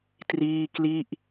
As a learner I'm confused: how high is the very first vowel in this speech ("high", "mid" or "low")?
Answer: high